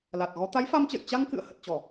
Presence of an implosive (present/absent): absent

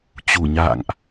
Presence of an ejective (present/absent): absent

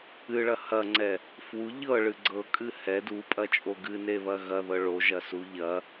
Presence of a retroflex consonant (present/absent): present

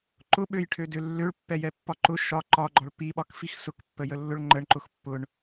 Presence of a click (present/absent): present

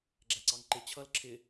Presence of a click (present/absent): present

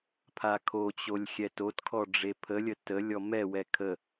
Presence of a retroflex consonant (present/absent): present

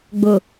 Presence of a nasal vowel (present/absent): absent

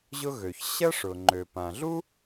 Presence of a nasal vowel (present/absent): present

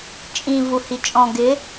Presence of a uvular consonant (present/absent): absent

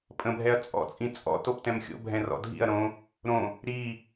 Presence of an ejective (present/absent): present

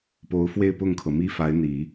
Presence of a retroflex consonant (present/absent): absent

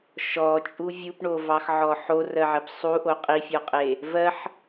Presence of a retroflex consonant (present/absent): present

